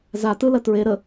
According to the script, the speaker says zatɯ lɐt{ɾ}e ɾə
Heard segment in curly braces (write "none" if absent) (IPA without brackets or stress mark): ɹ